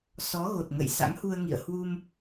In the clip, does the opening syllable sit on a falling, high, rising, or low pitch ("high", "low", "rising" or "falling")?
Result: rising